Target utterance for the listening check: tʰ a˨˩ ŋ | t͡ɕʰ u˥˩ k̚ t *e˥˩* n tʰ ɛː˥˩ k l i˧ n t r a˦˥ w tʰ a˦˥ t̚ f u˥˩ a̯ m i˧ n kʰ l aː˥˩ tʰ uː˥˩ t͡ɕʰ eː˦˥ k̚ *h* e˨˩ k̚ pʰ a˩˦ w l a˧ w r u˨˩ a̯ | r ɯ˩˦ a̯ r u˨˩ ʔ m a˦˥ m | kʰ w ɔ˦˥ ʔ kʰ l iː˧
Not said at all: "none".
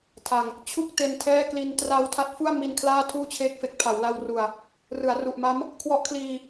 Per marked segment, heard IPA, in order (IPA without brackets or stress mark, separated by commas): e˧, f